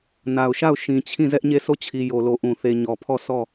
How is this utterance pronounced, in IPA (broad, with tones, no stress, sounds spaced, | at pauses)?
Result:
n a˨ ʊ̯ ʃ a˦˨ ʊ̯ ʃ ĩ˨ t͡ɕʰ ĩ˦˨ z ɛ˦ ʔ ɲ e˦˨ s o˦˨ t͡ɕʰ i˨ j o˨ l o˨ ʔ ũ˨ θ e˨ ɲ ɔ˨ pʰ ɔ˦˨ s ɔ˦˨